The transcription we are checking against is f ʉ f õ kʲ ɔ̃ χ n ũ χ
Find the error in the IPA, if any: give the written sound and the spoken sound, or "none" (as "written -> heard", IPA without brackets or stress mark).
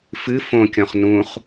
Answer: ʉ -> ɨ